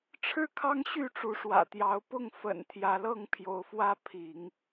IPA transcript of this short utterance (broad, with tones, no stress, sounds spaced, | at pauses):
ʈ͡ʂʰ ɻ̩˥˨ kʰ ɑ˦ ŋ ɕ y˥˨ ʈ͡ʂ u˨˦ ʂ w ä̰˨˩ t̪ j ɑ˨˦ ʊ̯ p ʊ˥˨ ŋ f ə̰˨˩ n t̪ʰ j ä˨˦ l ɤ˥˨ ŋ pʰ j o˨˦ ʊ̯ f w ä˦ pʰ i˨˦ ŋ